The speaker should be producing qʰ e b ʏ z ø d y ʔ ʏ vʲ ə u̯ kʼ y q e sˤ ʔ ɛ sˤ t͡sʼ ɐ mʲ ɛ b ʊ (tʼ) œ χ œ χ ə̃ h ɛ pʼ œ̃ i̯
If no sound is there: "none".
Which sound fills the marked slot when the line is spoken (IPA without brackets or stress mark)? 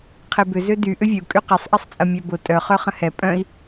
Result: tʼ